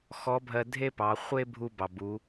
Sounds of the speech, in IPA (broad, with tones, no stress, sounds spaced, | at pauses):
x ɔ˧˥ bʱ ɜ˧ dʱ e˥ p ɑ˩˧ χʷ e˥ bʱ u˧ b ɑ˩ b u˩˧